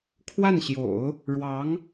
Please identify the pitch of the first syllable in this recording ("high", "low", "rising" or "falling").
falling